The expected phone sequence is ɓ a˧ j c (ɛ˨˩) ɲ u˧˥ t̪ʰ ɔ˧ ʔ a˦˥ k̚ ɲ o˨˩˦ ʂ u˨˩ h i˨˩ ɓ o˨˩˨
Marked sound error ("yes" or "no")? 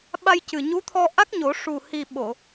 yes